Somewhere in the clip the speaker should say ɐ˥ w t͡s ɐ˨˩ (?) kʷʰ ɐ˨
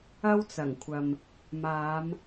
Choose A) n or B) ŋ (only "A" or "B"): B